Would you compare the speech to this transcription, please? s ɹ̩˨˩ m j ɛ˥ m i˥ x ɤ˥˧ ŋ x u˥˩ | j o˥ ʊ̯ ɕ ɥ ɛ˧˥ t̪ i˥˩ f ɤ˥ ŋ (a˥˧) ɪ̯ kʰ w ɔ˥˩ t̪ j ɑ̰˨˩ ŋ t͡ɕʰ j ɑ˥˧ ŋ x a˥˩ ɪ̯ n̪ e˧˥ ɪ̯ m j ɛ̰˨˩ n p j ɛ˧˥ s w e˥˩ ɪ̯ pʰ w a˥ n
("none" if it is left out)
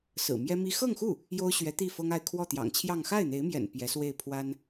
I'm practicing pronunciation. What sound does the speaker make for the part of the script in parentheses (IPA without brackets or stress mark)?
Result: a˥˧